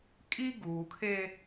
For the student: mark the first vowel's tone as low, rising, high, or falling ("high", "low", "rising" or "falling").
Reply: high